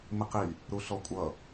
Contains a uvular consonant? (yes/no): yes